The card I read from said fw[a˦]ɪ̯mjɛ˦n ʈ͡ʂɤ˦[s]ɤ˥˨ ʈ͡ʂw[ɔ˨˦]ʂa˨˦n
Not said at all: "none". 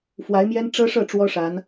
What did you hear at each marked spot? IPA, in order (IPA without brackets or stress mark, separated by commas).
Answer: a˨˦, ʂ, ɔ˦